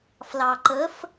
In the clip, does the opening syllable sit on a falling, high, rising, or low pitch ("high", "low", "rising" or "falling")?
low